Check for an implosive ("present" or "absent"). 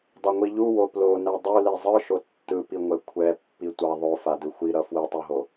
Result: absent